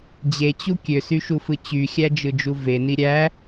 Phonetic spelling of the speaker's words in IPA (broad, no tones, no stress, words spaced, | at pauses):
d͡ʑet͡ɕu kʲøsyʃufɯ t͡ɕyxʲæd͡ʒɯd͡ʒu veni ɾʲæ